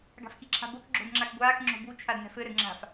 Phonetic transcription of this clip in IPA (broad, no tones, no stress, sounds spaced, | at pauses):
ɡ a̤ f k i ǁʰ a̤ b o k ɡ͡ǁ o̤ d ŋ͡ǁ a k ɡʷ aː k ŋ͡ǁ o̤ b u t͡ʃʰ a d n ɛ̤ f ɘ ɾ ɘ d ŋ͡ǁ a̤ f